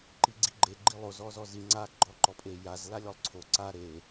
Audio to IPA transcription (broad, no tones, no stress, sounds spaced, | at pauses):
ǃ i ɡ͡ǀ i ɡ͡ǃ e ɡ͡ǃ i lˠ o z ɔ z ɔ z i ŋ͡ǀ a ɡ͡ǃ ɔ ǃ ɔ pʼ e j a z l a lʲ ɔ lˠ ǀʰ o ǀ a ɾ e